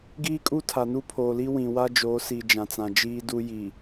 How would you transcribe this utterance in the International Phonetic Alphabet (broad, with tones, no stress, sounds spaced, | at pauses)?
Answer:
ɡ iː˦ kʼ u˦ tʰ a˨ n u˦ pʰ oː˨ l i˦ w ĩ˨ w a˦ d͡ʒ oː˨˦ s i˨ d͡ʒ ã˨ t͡s ã˨ d͡ʒ iː˦ d u˦ j i˨